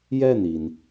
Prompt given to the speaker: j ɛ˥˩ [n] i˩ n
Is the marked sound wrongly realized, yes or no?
no